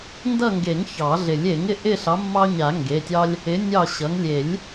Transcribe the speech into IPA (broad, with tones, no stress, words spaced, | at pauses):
ndʌ˦˨ŋɡe˨˩˦ŋ çɑ˨˩˦ɮɪ˨˩˦lʲ e˨˩˦ŋɪ˩˧˩ʔɪ˦˨ɬɑ˨˦ mːɑ˦ɲa˨˩˦ ŋɡe˩˧˩tʲɑ˦lʲ | ɪ˨˦ nʲɑ˦˨ɕʌ˨˦ŋ lʲe˨˩˦lʲ